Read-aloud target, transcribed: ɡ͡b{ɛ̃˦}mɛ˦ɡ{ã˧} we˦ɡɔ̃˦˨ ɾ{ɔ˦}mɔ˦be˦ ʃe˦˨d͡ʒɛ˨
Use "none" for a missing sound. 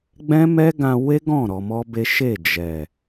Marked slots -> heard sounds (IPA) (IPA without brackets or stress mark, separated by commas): ɛ̃˦, ã˧, ɔ˧